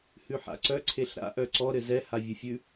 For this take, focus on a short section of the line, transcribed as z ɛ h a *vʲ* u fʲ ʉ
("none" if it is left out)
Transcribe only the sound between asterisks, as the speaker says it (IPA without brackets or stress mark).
vʲ